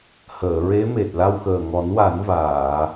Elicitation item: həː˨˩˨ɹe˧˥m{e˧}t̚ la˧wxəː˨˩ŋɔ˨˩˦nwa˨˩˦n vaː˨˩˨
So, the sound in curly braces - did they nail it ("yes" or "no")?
no